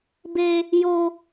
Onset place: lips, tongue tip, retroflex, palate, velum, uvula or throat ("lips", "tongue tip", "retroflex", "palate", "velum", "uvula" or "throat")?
lips